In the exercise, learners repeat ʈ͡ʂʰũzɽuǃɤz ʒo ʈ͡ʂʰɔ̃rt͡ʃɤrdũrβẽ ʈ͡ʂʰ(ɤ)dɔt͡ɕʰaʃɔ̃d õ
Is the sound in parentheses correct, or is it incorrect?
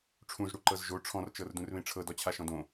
correct